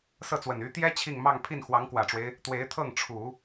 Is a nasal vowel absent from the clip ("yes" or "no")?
yes